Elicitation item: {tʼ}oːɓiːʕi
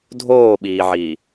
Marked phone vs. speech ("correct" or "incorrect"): incorrect